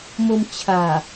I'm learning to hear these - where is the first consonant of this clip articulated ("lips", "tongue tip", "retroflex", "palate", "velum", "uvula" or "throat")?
lips